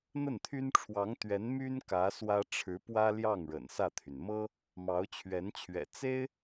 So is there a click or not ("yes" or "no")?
no